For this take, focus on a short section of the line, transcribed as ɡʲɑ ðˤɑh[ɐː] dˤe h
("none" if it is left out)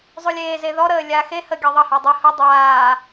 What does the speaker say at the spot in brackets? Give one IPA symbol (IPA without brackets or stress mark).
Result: əː